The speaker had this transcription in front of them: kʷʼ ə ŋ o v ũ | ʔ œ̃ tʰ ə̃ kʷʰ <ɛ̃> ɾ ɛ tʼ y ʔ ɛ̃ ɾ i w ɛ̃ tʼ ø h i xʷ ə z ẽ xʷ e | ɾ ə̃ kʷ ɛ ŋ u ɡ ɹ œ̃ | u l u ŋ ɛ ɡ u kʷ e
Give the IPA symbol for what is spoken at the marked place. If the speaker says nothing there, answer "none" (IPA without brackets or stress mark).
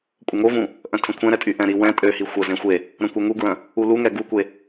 ɛ̃